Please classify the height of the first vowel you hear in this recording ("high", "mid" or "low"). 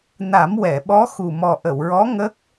low